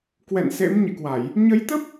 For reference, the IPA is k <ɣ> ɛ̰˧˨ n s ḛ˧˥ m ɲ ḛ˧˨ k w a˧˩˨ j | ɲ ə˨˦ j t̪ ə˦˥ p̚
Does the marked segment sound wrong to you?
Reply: yes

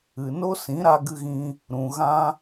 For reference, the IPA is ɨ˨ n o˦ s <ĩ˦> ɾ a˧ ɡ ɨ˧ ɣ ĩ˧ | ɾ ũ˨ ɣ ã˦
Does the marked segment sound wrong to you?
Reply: yes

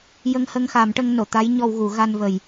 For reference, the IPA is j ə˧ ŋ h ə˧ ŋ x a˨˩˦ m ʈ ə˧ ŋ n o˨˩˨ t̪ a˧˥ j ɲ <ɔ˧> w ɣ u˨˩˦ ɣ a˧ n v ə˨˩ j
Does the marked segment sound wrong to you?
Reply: no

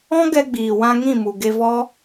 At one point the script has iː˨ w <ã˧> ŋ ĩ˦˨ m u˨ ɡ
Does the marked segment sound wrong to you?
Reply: no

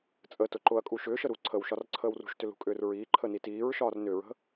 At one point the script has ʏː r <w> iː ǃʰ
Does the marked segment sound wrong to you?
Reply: yes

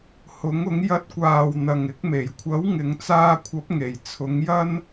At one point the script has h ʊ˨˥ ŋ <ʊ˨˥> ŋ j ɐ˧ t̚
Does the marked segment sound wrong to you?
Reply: no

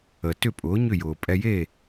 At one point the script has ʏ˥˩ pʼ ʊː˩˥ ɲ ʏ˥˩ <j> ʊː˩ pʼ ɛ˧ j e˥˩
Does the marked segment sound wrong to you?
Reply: no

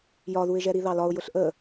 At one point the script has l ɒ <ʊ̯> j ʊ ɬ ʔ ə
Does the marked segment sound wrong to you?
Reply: no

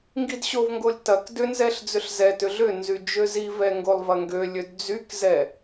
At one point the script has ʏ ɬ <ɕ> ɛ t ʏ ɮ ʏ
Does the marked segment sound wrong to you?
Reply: yes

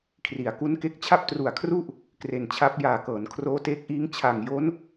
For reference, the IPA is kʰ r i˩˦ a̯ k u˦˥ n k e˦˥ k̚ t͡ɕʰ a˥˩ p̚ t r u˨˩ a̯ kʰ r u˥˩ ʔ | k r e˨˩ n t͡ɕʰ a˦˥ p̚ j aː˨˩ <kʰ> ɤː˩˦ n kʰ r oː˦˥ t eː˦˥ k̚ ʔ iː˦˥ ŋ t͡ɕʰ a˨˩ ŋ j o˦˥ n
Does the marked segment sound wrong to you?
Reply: yes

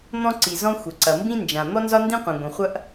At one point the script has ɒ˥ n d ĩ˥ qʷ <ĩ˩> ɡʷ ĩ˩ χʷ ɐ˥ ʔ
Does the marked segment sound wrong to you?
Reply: no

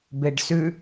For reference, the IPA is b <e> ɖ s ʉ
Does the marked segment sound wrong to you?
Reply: no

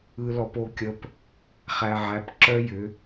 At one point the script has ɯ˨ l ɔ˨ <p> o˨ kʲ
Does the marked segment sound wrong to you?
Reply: no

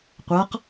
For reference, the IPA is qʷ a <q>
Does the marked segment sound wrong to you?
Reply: no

